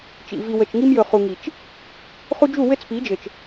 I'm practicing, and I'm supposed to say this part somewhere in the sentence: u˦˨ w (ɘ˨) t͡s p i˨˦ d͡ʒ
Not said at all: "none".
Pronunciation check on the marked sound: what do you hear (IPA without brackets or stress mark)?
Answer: ɘ˦